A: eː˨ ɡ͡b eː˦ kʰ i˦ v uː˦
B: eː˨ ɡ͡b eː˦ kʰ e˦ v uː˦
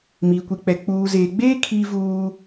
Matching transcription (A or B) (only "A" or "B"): A